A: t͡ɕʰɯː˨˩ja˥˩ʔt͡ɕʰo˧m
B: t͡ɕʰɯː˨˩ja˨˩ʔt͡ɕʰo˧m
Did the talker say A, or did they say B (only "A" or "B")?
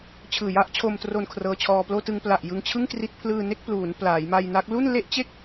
A